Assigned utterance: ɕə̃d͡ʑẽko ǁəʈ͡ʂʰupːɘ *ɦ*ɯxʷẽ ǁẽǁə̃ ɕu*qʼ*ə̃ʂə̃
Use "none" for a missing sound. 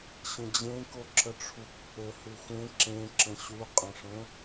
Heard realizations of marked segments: h, qʼ

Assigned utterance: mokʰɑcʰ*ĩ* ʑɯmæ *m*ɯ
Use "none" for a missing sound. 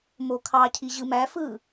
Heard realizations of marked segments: i, f

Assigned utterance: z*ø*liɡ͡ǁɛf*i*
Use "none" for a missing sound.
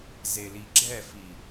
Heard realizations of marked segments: e, i

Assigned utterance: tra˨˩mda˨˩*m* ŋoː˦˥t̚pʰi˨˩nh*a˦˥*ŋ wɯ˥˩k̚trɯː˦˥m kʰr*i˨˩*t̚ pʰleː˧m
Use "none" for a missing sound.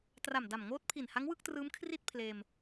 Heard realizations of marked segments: m, a˦˥, i˥˩

